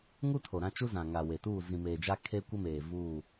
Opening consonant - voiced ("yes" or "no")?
yes